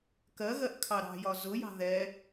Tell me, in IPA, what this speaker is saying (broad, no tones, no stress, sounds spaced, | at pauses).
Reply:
k ɜ ɣ ɜ ʔ kʰ ɑ ɾ ɑ̤ j ɒ z ʊ j ɑ̤ ð ɛ